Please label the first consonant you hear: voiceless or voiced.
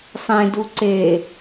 voiceless